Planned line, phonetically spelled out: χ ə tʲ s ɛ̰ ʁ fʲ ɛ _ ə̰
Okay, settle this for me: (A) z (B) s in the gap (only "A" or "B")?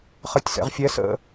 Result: B